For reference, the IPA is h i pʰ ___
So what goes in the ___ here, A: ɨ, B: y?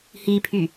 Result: B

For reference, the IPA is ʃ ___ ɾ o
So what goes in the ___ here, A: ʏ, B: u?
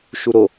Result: B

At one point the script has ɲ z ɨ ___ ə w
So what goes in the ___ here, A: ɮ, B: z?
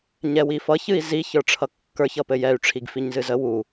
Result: B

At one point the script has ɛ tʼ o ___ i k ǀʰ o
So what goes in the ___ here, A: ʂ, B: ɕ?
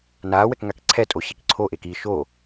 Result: B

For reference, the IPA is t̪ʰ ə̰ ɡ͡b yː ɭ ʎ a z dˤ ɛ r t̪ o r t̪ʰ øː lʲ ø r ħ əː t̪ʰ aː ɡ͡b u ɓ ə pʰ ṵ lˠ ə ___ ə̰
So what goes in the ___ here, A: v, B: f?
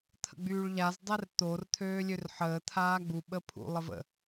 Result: A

